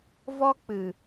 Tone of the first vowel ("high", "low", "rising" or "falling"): high